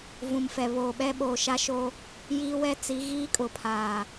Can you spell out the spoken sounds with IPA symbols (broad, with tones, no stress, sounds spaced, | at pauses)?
v ũ˨ m f ɛ˨ β oː˨ ɓ ɛ˦ ɓ oː˨ ʃ a˦ ʃ o˦ | j iː˦ w ɛ˦ t͡s i˨˦ ɣ iː˦ kʼ ʊ˨ pʰ aː˨